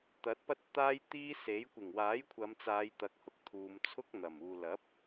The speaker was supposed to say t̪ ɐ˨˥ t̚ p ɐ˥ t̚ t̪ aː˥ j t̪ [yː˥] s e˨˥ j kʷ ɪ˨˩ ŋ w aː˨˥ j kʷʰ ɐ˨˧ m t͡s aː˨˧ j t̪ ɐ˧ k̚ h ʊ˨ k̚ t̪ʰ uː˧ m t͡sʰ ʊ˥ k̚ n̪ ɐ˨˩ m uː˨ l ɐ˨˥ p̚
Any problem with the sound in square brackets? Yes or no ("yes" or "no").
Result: yes